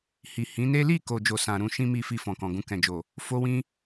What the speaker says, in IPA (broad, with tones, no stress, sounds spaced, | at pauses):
h i˨ h ĩ˨˦ n e˦ l i˦˨ k o˨ d͡ʒ o˨ s ã˨ ɾ ũ˧ ʃ ĩ˦ m i˧ f i˧ f ɔ̃˨ k ɔ̃˨ ɡ ũ˧ k ɛ̃˨ d͡ʒ o˨ | f o˦ w ĩ˦